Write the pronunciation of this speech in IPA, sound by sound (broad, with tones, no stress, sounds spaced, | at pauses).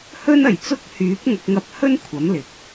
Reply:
h ɵ˥ n ɐ˨˩ j t͡s ʊ˥ k̚ h yː˨˥ p̚ ŋ ɐ˨ k̚ ŋ ɐ˧ p̚ h ɵ˥ n kʷʰ ɐ˨˥ m l ɪ˨˥ k̚